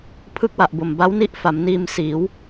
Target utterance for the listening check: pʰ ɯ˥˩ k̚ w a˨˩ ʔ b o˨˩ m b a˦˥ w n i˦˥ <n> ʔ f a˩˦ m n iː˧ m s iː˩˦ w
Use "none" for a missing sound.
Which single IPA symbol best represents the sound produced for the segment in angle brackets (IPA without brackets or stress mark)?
none